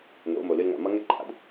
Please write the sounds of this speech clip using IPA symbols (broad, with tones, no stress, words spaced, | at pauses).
no̰˩˧ mo˩lɨ˧lŋa̰˩ mʌ˥ŋɛ˥ǃʼa̰˩d